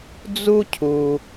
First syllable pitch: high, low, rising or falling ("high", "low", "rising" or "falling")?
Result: high